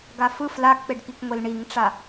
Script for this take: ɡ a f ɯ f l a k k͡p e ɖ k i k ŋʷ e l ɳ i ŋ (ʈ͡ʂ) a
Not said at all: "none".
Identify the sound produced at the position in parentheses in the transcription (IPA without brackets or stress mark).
ʈ͡ʂ